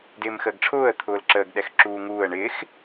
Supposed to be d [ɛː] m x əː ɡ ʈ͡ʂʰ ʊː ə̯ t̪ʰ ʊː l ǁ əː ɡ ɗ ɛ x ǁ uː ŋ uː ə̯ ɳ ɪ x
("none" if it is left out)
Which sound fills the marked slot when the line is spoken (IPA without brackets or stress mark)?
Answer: ɪː